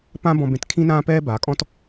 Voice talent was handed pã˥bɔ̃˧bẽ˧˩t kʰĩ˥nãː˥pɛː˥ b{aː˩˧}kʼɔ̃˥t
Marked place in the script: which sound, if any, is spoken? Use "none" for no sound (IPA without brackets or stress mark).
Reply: aː˩˧